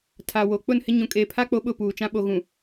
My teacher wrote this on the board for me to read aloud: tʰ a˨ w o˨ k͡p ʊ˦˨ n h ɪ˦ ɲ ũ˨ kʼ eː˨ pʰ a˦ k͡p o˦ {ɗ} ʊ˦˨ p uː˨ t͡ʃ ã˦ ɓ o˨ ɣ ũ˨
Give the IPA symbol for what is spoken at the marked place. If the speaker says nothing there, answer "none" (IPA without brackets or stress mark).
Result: ɓ